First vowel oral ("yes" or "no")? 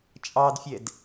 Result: yes